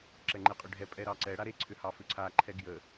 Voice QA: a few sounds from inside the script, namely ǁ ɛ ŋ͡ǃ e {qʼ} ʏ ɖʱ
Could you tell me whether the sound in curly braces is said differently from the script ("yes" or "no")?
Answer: no